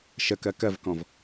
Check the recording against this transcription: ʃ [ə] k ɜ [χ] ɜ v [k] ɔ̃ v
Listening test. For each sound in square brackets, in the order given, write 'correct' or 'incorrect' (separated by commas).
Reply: correct, incorrect, correct